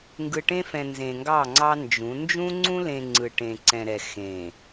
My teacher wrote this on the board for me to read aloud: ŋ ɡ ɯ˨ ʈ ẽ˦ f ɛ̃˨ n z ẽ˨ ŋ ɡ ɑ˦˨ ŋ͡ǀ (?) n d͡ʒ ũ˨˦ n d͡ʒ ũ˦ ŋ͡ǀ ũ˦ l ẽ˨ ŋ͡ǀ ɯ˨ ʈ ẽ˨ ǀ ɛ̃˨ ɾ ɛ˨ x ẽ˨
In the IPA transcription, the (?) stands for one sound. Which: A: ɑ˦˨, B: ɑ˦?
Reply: B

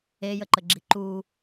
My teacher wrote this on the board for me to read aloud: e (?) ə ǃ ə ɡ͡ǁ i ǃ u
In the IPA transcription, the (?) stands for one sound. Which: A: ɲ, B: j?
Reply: B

